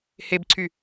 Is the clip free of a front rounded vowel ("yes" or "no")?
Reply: no